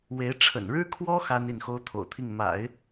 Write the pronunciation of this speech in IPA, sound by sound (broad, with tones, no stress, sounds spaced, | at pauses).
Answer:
w e˧˥ ɪ̯ ʈ͡ʂʰ ə̰˨˩ n ɻ ɻ̩˥ kʰ w ɔ˥ x a˥ n i˥˩ n x o˥ ʊ̯ t̪ʰ o̰˨˩ ʊ̯ t̪ʰ i˥˩ ŋ m a̰˨˩˦ ɪ̯